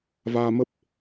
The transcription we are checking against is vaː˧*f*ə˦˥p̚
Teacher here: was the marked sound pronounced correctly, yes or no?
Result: no